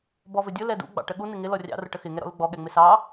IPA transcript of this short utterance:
b ɔ v ə dʲ ʊ l ɛ d ṵ ɡ͡b ɑ̰ ʈ ə ɠ u n ɪ ŋ ɪ l ɔ rʲ ɑ̰ r ʊ ʈ ə x ɪ ŋ ɛ ɾ ɔ̰ l ʊ ɡ͡b ɔ ɠ ɛ ŋ͡m ɪ s ɑ

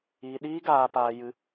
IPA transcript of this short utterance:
iː˧ ɗ iː˦ ɡ aː˧ p aː˧ j ɨ˧

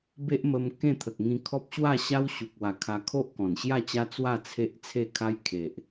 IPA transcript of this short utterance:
b e˦ ʔ m ə˧ m k ẽ˥˧ t̪ʰ ə˨ k̚ ŋ ĩ˧ kʰ ɔ˦ p̚ ɕ w a˥˧ ɕ a˦ w ɕ u˨ k̚ w a˨˩ kʰ a˧ kʰ o˦ ʔ k ɔ̃˨˩ n ɕ j a˥˧ t͡ɕ a˦ t͡s w a˥˧ t͡sʰ e˦ ʔ t͡sʰ e˥˧ kʰ a˦ j kʰ e˨ ʔ

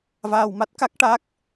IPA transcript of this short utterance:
v aː˧ w m a˦˥ t̚ k a˦˥ k̚ ʈ a˦˥ k̚

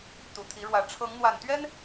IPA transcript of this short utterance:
t̪ u˨˩ t̪ʰ i˨˦ ɻ w ä˨˦ ʈ͡ʂʰ ɤ˨˦ ŋ n̪ w a˨˩ n t̪ ɥ ɛ˦ n

